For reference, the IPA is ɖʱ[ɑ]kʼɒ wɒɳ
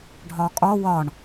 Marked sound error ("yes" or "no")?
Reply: yes